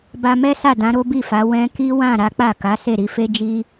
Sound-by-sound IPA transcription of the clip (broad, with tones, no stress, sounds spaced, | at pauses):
b a˧ m ɛ˦ s a˦˨ d ã˨˦ ɾ o˦ b i˦˨ f a˨˦ w ɛ̃˧ k i˦ w ã˦˨ ɾ a˨˦ k͡p a˦˨ k a˨˦ s e˦˨ ɾ i˧ f e˦ d͡ʒ i˦